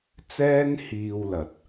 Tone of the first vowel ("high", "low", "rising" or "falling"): high